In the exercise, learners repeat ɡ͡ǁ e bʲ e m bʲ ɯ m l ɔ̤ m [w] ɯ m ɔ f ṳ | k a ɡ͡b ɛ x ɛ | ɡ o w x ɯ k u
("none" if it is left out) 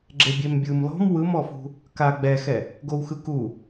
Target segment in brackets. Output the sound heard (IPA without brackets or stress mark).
w